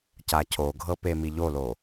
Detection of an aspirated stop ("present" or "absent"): present